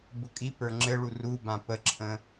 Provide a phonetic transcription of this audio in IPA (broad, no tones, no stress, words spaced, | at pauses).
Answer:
bʊkʼipə˞ ŋ͡ǁɘɭu rubã pəǁʰə̃